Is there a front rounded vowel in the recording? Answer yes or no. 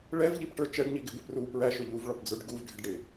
no